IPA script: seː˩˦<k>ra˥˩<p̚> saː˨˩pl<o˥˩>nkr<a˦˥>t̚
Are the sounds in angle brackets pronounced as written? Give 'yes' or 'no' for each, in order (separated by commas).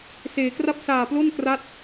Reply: yes, yes, yes, yes